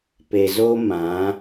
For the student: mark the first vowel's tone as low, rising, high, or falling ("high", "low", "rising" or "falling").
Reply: low